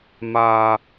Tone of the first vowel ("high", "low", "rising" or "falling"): low